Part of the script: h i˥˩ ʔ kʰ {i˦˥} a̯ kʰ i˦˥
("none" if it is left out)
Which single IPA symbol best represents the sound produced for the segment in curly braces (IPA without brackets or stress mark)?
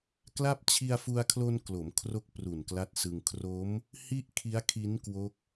i˦˥